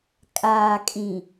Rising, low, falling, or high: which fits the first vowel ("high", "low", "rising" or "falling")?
low